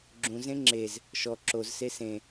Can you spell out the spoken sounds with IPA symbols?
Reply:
ɡ͡ǁũzẽ ŋ͡ǁez | ʃɔ ǁozse sẽ

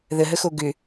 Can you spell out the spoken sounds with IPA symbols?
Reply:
ðəɦəxo ɡʏ

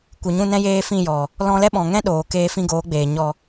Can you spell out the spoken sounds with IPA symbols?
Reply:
kʷɨ˨ɲũ˦˨nɛ̃˦ jeː˦fĩ˦˨jɔ˨ | lɔ̃˧lɛ˦ɓɔ̃˨ŋɛ̃˦ ɗoː˨ keː˧fĩ˧ɡoː˨˦ɡ͡beː˨ ɲɔ˨

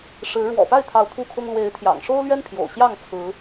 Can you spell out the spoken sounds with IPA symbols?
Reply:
ʂɻ̩˨˦ ɻwɔ̰˨˩pa˥˨ɪ̯t̪ʰɑ˨˦ʊ̯ t̪ʰu˦kʰʊ˦ŋ lwe˨˦ɪ̯ t̪ʰjɑ̰˨˩ŋʂo˦ʊ̯lɥɛ˦n pʰjo̰˨˩ʊ̯ɕjɑ˥˨ŋt͡sʰɹ̩˨˦

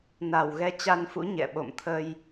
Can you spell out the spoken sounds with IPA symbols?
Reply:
na˨˩wɣɛ˨˦ t͡ɕa˧nfṵ˧˥ ɲɛ̰˧˨ɓo̰˧˨m t̪ʰə˧j

